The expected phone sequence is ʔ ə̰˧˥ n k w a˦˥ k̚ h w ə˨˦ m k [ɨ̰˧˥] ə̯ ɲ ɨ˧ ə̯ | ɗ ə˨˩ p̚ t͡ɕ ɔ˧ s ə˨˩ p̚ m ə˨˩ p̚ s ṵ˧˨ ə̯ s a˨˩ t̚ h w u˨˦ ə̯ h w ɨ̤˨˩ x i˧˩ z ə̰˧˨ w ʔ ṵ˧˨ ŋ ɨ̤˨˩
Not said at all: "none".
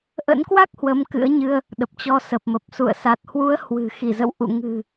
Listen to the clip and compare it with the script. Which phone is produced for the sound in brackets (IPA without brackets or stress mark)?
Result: ɨ̰˧˥